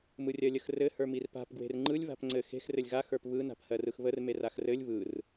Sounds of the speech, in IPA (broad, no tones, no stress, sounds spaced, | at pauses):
m ɯ rʲ ɜ lʲ ə x r ɘ h ə˞ m i r p a̤ p ɡ w e̤ r ŋ͡ǃ ɯ lʲ β a̤ p ŋ͡ǀ ɘ x e̤ x r ɘ lʲ ɣ a x ə˞ p β ɯ n a̤ p h ɜ r ɯ x β ə r m e r a x r ɘ lʲ β ɯ r